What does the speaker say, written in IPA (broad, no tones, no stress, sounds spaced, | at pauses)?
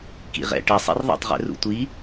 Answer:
k ḭ ʁ ɛ̰ ʈ ɛ sˤ ḭ r ðˤ ɛ̰ tˤ ʁ ɛ̰ r ṵ tʷ i